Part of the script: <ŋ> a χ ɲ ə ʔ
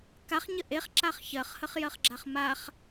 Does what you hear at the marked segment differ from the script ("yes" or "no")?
yes